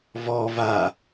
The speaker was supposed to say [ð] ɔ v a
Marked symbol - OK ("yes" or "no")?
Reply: no